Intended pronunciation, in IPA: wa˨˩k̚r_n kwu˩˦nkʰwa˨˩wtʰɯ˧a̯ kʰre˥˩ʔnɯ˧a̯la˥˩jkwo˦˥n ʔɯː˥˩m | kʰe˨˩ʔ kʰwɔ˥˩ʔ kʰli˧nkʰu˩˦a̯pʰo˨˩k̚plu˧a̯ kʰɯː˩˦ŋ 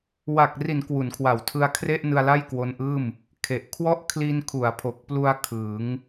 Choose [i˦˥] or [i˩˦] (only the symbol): i˩˦